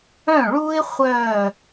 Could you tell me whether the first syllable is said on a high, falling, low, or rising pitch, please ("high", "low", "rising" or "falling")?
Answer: falling